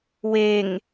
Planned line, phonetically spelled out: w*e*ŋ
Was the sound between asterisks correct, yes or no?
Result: yes